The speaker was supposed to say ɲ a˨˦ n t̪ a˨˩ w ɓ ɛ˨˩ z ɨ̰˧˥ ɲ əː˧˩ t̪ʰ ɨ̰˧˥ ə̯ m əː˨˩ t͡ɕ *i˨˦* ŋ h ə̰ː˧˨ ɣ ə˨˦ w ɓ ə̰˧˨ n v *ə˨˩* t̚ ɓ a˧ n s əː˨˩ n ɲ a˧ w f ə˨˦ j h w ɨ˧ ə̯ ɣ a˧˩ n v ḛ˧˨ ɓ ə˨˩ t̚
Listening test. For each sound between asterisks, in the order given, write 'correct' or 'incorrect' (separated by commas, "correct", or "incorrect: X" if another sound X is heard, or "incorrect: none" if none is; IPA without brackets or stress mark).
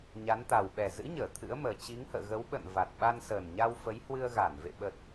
correct, incorrect: a˨˩